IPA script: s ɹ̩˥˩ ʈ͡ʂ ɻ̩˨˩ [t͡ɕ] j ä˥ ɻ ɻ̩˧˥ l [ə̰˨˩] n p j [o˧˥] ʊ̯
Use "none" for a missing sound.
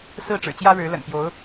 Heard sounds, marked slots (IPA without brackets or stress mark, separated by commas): t͡ɕ, ə̰˨˩, o˧˥